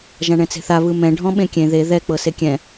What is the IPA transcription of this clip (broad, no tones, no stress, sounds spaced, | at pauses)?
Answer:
ʒ ã ɳ ɛ̃ t͡s e̤ θ a β ɯ m ɛ̃ ɖʱ ɔ̃ ɓ ẽ kʲ ẽ ð e ð ɛ k͡p ɤ s e kʲ ɛ̃